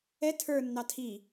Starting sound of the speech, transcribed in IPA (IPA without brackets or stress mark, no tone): ɛ